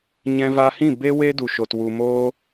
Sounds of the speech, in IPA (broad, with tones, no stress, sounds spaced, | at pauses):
ɲ ɛ̃˧ v a˧ h ĩ˦˨ b e˦ w e˦ d u˨ ʃ o˨ t w u˨ m oː˧